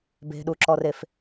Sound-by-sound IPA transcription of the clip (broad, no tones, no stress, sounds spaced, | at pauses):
b e̤ ɗ u ǁ ɔ r e f